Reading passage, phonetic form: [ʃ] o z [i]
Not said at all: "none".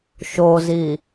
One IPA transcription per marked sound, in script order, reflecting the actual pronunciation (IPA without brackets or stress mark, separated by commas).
ʃ, i